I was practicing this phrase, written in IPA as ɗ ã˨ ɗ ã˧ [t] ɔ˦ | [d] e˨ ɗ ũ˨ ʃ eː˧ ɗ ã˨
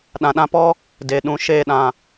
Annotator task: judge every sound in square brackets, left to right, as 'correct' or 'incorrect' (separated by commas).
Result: incorrect, correct